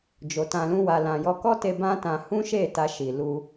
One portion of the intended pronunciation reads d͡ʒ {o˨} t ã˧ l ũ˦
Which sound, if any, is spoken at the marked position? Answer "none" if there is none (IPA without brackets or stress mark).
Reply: o˨